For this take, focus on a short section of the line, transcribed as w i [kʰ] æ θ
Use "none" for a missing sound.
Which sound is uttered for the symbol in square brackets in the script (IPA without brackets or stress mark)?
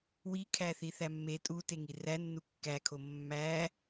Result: kʰ